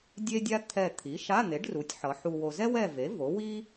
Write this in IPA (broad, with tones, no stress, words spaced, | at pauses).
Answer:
dʲe˥dʲa˥ t̪ʰɛ˦˨ t̪ʰi˩˥ʃa˧˥˧n̪e˩˥ɖru˩˥tʲ ħʌ˩˥ ħu˨wo˨ zɛ˥wɛ˦˨ve˩˥ vo˩˥wi˥